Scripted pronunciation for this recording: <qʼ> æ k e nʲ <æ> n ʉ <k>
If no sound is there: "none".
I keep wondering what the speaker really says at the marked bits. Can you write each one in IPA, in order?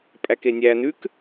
pʼ, æ, k

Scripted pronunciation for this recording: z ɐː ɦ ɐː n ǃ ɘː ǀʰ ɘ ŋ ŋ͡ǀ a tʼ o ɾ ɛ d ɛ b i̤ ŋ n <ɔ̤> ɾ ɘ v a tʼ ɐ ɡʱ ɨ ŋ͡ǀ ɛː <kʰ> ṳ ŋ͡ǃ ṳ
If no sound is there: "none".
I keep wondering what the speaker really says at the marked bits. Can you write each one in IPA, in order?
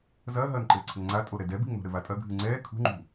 o̤, kʰ

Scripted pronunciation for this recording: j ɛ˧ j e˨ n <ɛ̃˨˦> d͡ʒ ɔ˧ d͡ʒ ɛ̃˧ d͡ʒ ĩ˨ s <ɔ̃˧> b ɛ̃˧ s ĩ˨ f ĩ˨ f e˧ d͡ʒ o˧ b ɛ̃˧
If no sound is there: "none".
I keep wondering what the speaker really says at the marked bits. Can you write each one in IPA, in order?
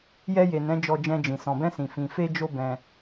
ɛ̃˨˦, ɔ̃˨

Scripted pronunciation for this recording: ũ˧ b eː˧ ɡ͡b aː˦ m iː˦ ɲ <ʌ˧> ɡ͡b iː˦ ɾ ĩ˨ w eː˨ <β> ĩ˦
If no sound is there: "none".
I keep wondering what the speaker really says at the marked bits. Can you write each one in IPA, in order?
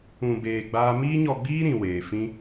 ɔ˧, f

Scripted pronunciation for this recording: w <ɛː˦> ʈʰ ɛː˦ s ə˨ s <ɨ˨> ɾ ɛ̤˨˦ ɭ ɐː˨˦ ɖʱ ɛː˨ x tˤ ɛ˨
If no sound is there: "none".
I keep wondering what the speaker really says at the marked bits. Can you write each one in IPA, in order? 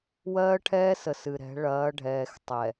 ɜː˦, ɨ˨

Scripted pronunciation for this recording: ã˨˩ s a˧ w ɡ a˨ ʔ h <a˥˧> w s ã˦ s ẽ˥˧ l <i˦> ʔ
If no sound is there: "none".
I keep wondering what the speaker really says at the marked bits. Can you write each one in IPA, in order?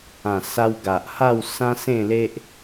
a˥˧, e˦

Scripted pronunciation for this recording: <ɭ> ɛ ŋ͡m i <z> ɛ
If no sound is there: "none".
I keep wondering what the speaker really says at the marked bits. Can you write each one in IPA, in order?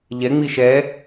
ʎ, ʃ

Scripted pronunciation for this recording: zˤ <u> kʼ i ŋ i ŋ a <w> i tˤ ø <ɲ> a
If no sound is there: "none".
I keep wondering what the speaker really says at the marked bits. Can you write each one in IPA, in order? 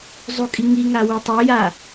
u, w, j

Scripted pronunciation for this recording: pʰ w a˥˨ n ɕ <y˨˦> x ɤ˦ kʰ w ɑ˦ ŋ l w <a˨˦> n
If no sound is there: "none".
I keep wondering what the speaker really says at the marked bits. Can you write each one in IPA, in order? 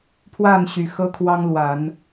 y˨˦, a˨˦

